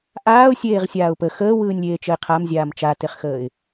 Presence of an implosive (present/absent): absent